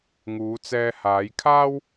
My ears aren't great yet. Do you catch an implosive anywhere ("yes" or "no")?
no